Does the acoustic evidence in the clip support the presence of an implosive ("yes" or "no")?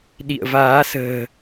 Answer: yes